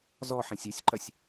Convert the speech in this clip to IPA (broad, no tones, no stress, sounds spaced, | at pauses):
z ɔ ħ ẽ sʲ ə sʲ ǃ ɐ sʲ